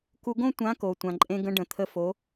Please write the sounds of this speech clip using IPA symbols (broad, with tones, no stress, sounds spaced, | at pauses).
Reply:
k u˧ ɡ õ˥ tʷ ã˧˥ k o˩ tʷ ã˩ ǃʼ ẽ˧ ɡ ə̃˧ ɖ ə̃˩ t̪ʰ ə˧ f o˩˧